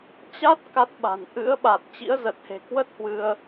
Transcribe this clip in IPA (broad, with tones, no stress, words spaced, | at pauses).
t͡ɕa˦˥t̚ ka˦˥t̚ɓa̤˨˩n ʔɨ̰˧˥ə̯ɓa˨˩t̚ t͡ɕḭ˧˥ə̯zə˨˩t̚he̤˨˩ kwə˦˥t̚hwɨ˧ə̯